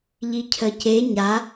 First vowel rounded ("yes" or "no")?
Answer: no